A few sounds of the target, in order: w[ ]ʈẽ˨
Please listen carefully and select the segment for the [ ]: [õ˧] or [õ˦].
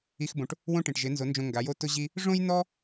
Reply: õ˦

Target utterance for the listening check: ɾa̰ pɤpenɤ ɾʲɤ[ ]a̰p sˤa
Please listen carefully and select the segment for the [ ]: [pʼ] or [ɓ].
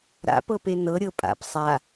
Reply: pʼ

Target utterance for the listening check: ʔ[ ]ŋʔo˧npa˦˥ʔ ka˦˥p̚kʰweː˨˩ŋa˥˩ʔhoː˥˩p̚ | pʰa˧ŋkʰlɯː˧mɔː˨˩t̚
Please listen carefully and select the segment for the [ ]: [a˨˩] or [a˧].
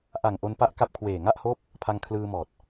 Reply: a˨˩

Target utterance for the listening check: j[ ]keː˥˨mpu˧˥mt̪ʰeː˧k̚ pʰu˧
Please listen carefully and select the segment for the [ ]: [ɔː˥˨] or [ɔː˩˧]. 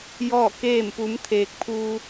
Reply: ɔː˥˨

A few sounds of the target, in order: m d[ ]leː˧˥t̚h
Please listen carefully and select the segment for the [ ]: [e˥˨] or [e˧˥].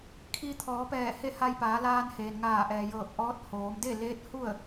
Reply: e˥˨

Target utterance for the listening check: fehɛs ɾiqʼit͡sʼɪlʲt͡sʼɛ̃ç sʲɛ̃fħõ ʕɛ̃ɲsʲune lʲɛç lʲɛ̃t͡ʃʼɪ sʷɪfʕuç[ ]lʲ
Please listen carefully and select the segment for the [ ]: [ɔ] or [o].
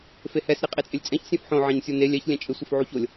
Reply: o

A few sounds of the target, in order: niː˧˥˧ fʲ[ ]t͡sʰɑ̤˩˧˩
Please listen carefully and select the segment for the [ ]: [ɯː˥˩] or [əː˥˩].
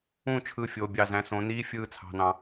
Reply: ɯː˥˩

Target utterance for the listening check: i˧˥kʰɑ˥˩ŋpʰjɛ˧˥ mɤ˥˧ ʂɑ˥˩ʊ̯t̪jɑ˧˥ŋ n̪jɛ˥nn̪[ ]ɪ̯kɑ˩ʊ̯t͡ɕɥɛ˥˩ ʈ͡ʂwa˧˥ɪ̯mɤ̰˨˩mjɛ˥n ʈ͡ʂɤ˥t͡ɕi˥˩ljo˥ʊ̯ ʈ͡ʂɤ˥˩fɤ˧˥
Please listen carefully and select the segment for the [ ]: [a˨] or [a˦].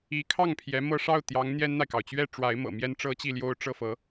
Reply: a˨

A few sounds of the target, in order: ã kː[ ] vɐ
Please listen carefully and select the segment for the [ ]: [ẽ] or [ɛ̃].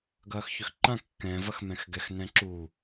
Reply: ɛ̃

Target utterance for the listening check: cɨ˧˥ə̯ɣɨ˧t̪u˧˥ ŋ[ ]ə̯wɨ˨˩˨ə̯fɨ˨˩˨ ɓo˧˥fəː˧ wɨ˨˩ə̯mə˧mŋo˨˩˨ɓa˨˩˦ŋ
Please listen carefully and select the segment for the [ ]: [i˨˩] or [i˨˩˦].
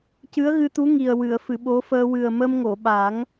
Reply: i˨˩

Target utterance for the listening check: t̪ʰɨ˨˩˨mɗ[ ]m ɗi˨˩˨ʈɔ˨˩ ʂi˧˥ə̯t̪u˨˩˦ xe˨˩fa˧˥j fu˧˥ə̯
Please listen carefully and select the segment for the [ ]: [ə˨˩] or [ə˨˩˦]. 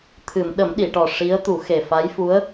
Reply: ə˨˩˦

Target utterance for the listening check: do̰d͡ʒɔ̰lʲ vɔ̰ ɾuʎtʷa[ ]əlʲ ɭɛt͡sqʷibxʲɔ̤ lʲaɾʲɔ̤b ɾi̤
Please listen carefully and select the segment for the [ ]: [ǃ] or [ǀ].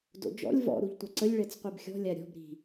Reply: ǀ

